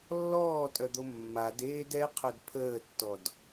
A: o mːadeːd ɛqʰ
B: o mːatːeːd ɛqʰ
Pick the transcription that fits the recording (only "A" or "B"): A